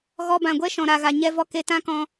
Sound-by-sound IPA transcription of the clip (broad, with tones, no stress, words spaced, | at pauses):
ɣɔ˧ bã˨ɡʷɛ˦ ʃɔ̃˨ɾa˨ɣa˨ ɲɛ˧vɔ˧ ke˧tã˦kɔ̃˧